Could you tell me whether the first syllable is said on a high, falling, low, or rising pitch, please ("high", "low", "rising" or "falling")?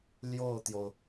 falling